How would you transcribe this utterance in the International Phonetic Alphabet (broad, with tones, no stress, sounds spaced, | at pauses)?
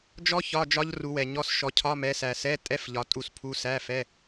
d͡ʒ ɔ˦˥ ç ɒ˧˥˧ d͡ʒ ɒ˦˥ ʎ r u˨˦ w ɛ˨ ɲ ɔ˧˥˧ s ʃ ɔ˨˦ cʰ ɒ˧˥˧ m ɛ˨˦ s æ˨ s ɛ˧˥˧ tʼ ɛ˧˥˧ f ʎ ɒ˨˦ tʼ u˥˨ s pʰ u˦˥ s æ˧˥˧ f ɛ˧˥˧